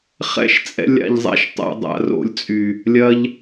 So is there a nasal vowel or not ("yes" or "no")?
no